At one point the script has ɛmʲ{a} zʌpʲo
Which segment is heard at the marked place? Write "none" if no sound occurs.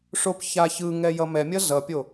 ʌ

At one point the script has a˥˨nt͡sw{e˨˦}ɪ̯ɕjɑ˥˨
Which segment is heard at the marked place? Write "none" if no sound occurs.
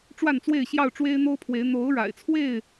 e˥˨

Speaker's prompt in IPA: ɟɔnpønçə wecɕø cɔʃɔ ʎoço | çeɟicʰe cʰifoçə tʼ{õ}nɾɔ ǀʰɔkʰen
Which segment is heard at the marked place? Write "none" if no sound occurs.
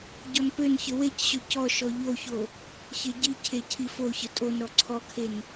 o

